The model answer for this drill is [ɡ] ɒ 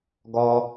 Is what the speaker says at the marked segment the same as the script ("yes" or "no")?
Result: yes